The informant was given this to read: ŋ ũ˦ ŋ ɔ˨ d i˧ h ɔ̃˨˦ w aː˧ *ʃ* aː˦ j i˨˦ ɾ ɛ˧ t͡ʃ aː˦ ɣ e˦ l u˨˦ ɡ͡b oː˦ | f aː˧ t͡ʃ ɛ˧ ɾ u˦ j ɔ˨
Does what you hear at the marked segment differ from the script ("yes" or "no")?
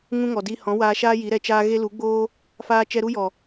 no